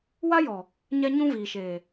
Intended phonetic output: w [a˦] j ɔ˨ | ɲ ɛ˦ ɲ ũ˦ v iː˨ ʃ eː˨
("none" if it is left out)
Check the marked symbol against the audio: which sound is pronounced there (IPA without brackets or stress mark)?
a˦